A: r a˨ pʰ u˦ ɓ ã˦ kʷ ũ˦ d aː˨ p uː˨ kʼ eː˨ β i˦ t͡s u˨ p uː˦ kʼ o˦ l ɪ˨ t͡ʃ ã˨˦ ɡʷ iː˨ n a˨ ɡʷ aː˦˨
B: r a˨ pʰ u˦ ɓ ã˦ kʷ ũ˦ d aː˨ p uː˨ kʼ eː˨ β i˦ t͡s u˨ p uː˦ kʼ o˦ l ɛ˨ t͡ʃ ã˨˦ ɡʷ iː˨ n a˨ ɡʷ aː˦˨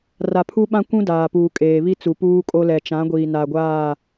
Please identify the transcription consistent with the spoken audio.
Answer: B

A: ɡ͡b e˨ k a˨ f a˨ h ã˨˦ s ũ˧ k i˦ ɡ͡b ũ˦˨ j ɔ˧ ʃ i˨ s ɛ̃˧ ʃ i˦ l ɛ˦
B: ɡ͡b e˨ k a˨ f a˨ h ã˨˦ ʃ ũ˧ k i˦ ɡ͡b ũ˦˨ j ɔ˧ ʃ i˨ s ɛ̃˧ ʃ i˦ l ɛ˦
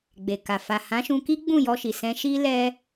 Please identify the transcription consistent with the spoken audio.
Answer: B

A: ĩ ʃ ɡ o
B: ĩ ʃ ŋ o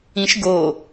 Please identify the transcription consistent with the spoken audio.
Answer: A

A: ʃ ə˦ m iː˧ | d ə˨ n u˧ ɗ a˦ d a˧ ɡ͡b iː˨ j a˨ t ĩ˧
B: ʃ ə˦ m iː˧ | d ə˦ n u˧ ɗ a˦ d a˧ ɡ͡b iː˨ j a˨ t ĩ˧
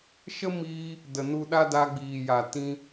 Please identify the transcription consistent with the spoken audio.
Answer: A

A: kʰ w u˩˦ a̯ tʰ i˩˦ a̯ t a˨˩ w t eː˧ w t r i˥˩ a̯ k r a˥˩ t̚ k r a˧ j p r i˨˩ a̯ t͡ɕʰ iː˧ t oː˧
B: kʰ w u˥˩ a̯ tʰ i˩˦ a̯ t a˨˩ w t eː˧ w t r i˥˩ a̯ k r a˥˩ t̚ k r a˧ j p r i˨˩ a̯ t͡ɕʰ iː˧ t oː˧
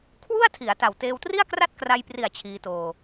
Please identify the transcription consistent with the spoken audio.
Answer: B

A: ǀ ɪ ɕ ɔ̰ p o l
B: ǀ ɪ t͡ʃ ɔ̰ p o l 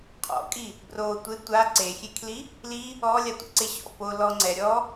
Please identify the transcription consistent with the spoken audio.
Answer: A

